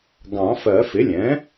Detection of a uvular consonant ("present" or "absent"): absent